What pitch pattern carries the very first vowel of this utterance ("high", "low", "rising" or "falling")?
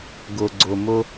low